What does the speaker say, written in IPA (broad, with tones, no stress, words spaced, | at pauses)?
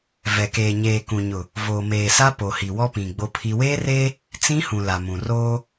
vɛ˨keː˨ɲeː˨ kũ˨ɲʊ˨ | voː˨meː˨sa˦ poː˨hi˨wɔ˦pĩ˨ ɡ͡bo˦pʰi˦ weː˦reː˦ | t͡sĩ˦hũ˨ la˨mũ˨ roː˦